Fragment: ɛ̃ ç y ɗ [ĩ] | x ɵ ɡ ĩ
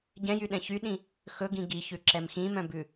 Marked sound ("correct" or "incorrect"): correct